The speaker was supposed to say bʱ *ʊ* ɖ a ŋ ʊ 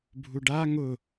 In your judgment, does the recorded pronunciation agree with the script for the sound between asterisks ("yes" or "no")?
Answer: no